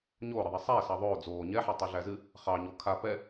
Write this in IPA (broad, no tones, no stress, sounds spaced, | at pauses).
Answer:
ɲ oː ɾ ɨ ðˤ ɛ sˤ ɛː s ɑ ðˤ oː d͡z oː ɲ ɛ ħ a tˤ i ɮ æ z ɨ | χ ɑ ɲ o kʰ a p ɛ